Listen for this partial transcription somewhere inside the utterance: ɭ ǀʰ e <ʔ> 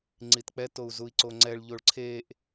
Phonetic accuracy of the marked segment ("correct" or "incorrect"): correct